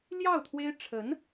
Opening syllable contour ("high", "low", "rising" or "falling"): falling